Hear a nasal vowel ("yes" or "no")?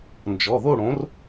yes